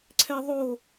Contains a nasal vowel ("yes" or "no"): no